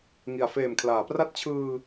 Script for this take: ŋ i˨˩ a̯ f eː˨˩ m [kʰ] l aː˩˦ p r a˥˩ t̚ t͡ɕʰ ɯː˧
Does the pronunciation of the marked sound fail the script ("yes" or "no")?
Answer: no